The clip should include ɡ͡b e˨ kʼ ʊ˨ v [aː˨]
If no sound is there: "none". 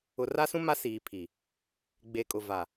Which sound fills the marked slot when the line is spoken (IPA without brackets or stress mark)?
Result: a˨